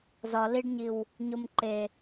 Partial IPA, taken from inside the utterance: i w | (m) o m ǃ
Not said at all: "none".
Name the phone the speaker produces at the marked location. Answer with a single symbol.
ɲ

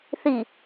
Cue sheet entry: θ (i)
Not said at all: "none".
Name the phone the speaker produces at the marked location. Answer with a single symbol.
i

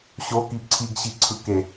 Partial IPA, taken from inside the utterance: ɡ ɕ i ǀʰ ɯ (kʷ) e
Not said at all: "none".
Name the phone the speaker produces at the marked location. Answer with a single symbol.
k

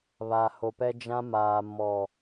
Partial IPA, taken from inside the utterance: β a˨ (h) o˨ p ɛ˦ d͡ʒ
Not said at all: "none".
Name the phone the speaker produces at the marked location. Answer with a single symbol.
h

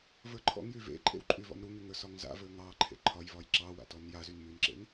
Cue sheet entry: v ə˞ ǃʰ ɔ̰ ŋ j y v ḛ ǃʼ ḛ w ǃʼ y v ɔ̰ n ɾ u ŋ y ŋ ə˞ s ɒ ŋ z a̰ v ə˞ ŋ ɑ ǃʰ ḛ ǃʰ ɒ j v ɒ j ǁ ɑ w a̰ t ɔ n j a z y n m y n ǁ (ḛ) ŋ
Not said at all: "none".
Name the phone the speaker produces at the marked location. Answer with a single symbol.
ḛ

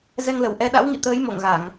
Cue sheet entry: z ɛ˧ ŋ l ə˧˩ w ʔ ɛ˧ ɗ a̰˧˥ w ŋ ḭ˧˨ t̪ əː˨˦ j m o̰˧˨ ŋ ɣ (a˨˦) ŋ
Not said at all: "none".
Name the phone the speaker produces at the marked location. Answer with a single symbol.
a˧˩˨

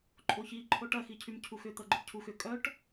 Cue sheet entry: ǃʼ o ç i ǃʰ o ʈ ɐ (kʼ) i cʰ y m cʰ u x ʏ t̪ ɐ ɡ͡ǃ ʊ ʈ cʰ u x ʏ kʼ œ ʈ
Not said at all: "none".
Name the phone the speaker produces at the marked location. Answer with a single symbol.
x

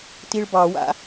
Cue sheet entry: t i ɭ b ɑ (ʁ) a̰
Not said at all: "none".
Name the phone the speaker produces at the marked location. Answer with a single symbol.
w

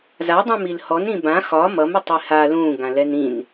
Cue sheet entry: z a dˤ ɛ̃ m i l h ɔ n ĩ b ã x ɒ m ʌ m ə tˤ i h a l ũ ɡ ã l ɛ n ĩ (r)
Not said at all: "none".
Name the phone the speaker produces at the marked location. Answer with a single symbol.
n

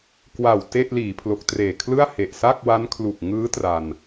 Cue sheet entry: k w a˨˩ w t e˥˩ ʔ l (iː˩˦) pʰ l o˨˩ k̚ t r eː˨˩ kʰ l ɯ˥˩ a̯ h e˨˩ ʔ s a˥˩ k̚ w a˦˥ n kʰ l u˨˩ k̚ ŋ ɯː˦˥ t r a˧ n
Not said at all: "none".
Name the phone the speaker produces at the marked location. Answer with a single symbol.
iː˩˦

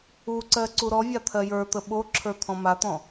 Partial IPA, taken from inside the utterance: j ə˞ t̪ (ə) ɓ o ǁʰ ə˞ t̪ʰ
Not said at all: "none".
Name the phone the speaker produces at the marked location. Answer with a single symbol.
ə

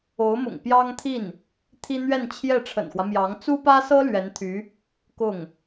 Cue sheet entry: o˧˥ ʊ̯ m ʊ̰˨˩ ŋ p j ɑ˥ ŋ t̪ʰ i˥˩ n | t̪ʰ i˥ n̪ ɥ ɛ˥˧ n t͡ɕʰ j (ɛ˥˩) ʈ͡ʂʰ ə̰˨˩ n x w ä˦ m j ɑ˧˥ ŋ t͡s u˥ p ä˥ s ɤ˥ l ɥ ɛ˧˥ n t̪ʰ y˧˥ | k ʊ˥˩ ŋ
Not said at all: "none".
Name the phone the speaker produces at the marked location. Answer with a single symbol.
ɛ˥˩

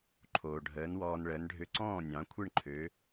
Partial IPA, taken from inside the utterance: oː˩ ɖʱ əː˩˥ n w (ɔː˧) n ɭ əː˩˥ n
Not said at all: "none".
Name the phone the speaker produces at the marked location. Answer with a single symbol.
ɔː˧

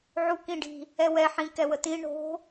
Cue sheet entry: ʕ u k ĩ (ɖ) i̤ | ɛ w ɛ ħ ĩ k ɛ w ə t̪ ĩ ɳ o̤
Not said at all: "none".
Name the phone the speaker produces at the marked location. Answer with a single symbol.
ɖ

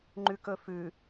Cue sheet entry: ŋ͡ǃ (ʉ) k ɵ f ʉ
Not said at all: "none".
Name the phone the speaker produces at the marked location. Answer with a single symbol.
ʉ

